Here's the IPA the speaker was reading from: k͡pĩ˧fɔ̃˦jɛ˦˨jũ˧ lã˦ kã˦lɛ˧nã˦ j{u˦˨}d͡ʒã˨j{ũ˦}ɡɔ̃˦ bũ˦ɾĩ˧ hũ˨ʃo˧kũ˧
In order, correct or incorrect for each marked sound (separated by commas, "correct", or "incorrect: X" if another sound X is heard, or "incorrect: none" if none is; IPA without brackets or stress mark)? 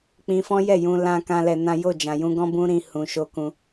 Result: incorrect: o˦˨, incorrect: ũ˧